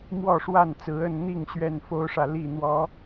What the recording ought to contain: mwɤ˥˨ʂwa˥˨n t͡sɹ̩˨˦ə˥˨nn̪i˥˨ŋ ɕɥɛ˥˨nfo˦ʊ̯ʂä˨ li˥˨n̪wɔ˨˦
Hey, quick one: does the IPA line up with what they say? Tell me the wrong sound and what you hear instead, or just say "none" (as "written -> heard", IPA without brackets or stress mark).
ɤ˥˨ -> ɔ˥˨